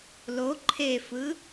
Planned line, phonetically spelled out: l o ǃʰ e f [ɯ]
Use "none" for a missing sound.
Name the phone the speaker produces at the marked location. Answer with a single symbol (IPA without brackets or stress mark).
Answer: ɯ